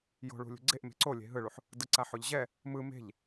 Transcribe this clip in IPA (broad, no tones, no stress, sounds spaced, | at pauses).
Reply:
j o̤ ɭ ṳ lʲ ṳ ɡ͡ǀ e ʔ m e̤ ǀ o lʲ e̤ ɦ ɯ ɭ u ħ | d ɯ ǀ a ħ o ʎ ʑ ɛ | m ɯ m e̤ ʎ